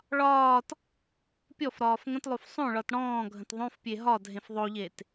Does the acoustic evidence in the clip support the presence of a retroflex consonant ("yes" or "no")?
yes